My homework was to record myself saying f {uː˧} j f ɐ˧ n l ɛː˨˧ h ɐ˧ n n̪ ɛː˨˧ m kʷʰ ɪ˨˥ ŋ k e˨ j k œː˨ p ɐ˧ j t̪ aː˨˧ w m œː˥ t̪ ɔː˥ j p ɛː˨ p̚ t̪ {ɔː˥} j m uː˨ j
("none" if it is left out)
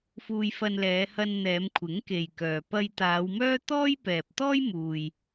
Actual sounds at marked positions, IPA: uː˧, ɔː˥

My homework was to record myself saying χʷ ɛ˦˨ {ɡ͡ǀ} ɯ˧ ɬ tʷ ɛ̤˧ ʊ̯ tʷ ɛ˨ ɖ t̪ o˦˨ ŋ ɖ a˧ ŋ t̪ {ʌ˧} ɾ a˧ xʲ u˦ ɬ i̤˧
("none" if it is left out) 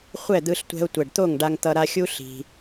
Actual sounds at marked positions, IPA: d̪, ʌ˧

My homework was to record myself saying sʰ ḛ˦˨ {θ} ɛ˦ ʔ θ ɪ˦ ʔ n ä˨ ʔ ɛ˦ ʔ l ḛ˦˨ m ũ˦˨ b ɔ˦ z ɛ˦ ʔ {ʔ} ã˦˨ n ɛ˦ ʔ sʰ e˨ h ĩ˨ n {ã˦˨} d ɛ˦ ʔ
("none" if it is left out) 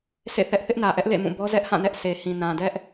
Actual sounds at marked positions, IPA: θ, h, ã˨

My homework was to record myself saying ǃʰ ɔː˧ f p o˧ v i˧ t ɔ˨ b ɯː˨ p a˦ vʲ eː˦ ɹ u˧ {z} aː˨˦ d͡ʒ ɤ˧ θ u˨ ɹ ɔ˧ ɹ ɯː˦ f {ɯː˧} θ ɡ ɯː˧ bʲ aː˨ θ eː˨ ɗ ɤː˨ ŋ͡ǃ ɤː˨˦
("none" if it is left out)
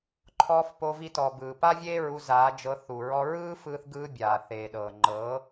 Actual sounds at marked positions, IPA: z, ɯː˧

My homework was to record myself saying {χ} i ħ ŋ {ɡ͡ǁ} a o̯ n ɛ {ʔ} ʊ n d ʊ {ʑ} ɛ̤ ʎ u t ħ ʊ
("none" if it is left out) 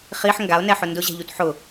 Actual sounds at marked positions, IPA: χ, ɡ, ħ, ʑ

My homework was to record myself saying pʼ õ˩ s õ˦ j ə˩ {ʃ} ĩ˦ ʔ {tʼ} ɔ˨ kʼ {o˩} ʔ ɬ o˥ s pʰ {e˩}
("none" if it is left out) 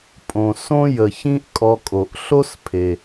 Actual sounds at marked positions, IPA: ç, kʼ, o˩, e˩

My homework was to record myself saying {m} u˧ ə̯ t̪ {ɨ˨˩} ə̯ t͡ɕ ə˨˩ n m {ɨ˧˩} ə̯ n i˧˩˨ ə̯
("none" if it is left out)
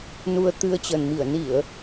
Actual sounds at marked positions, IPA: n, ɨ˧, i˧˩

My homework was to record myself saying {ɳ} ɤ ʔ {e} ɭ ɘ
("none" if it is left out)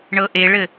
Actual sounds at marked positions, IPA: ɳ, e

